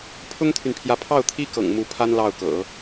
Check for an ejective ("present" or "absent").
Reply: absent